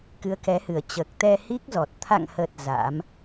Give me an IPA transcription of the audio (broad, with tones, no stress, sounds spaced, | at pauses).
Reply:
k ɨ˨˦ ə̯ k ɛ˨˦ h ɨ˨˩ ə̯ t͡ɕ əː˨˩ k̚ t̪ ɛ˧ h i˦˥ k̚ z ɔ˨˩ t̚ t̪ʰ a̰˧˨ ŋ h ə˨˩ t̚ z a̰˧˥ m